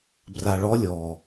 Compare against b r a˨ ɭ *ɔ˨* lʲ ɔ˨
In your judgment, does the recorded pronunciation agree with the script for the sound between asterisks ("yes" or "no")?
no